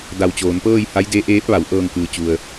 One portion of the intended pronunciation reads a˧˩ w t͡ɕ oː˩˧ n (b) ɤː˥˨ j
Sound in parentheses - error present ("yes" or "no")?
yes